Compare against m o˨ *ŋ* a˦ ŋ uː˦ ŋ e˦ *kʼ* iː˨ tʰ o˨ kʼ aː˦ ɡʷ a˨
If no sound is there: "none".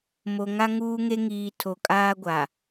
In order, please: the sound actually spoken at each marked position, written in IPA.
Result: ŋ, ŋ

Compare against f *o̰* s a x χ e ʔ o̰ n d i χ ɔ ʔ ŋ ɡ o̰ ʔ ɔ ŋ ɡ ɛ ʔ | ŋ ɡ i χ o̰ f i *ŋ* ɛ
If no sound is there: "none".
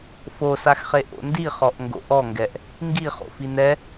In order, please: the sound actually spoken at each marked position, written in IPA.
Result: o, n

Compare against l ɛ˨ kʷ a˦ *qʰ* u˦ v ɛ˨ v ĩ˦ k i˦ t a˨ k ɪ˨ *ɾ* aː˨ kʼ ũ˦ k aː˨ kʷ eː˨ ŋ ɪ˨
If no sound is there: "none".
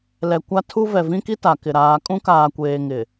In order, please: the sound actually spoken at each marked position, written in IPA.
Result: tʰ, ɾ

